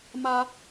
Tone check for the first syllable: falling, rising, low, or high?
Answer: high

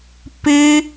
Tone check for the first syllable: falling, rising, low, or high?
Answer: high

